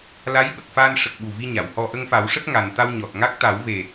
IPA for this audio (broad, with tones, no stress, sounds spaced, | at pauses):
l a˧˥ j ɓ ə˨˩ k̚ f a˧ n ʂ ə˨˩ k̚ ɓ u˨˩ v i˧ ɲ a˨˩˨ w h ɔ˧ ʔ ə˧ ŋ f a˨˩˦ w ʂ ə˦˥ k̚ ŋ a˨˩ n t̪ a˧ w ɲ ɔ˨˩ t̚ ŋ a˦˥ k̚ t̪ a˨˩˦ w v e˨˩